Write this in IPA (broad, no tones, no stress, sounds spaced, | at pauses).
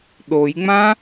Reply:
ɗ o j ŋ͡m ã